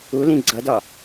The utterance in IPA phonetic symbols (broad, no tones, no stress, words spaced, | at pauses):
ulĩ ɡ͡ǀʌdɒ